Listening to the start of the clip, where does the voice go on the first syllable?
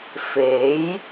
rising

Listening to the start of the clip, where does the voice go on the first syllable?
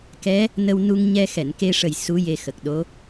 rising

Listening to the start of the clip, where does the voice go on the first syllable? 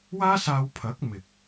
high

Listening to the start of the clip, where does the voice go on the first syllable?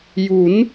rising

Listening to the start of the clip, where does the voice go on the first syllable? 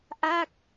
falling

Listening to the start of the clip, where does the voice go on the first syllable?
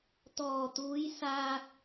low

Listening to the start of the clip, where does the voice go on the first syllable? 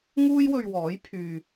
high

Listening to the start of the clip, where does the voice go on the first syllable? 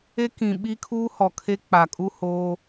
high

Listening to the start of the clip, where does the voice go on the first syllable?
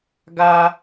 high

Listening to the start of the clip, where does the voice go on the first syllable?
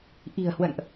low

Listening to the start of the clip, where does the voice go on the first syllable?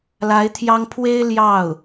rising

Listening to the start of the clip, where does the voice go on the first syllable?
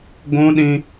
high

